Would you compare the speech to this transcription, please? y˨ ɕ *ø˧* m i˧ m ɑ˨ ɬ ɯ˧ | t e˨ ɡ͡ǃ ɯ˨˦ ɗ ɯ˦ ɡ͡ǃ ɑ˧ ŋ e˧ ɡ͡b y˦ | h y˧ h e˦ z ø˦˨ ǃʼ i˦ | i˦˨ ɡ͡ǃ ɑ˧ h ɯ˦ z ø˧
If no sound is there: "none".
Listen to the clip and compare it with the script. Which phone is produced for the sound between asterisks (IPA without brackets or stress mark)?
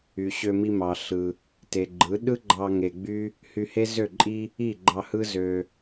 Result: ø˧